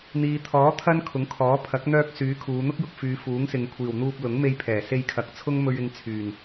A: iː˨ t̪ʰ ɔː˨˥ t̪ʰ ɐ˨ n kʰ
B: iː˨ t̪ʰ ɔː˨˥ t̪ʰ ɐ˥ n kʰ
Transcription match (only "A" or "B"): B